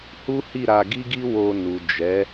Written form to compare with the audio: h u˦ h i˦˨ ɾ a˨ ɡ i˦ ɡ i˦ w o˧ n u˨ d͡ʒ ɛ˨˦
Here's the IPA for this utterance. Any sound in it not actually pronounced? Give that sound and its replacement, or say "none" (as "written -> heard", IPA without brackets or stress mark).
a˨ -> a˧